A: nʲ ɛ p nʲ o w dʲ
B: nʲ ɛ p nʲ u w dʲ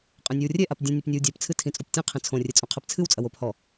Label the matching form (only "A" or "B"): A